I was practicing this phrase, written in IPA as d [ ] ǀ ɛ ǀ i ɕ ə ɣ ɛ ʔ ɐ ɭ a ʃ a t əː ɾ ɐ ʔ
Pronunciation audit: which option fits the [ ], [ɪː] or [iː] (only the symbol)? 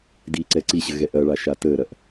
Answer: iː